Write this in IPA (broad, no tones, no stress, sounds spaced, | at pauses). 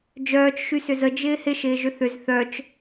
d͡ʒ œː t͡ʃ ʃ y s ʏ z ə d͡ʒ ɪː h ɪ ʃ ɪː ʒ ʏ θ ʏ z θ œ t͡ʃ